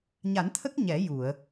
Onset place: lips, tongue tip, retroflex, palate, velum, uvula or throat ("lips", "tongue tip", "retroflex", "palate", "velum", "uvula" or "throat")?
palate